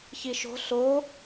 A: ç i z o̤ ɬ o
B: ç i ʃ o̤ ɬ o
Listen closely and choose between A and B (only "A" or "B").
B